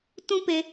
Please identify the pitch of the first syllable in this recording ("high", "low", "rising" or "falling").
high